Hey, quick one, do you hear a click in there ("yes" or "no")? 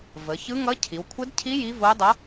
no